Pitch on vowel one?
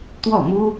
falling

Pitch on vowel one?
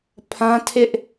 high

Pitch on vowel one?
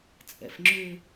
low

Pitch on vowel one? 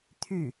falling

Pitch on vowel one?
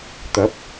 rising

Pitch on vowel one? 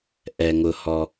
low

